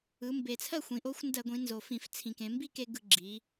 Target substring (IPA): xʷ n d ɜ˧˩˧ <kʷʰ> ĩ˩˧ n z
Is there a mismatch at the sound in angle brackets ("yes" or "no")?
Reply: yes